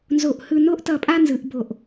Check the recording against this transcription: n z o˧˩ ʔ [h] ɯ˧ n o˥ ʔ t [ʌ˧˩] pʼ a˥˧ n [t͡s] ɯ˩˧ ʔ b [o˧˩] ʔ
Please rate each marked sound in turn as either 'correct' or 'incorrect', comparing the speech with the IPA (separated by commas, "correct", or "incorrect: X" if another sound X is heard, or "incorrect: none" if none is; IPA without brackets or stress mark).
correct, correct, incorrect: z, correct